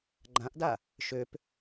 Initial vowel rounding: unrounded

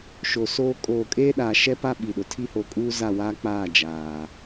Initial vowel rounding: rounded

